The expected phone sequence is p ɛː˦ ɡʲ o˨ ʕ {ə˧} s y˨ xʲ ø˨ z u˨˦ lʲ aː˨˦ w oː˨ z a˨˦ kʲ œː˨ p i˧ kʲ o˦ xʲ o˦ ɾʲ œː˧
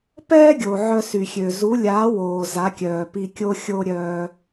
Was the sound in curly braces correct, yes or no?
no